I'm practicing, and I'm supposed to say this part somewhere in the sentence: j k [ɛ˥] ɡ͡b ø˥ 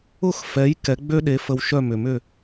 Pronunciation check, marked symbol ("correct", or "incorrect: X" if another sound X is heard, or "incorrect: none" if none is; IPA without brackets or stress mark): incorrect: ɛ˩˥